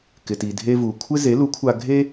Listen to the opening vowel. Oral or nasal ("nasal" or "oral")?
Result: oral